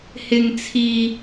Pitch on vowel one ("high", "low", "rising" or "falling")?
low